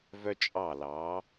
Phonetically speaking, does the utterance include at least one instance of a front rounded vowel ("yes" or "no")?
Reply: yes